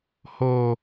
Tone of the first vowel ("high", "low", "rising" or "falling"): high